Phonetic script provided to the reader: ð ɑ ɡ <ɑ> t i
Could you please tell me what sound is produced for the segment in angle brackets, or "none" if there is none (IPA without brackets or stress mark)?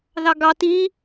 ɑ